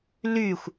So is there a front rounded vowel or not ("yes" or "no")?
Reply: yes